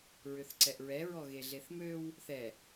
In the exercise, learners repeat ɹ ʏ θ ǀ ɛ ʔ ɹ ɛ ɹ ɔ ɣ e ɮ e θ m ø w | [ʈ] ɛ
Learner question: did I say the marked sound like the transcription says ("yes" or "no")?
no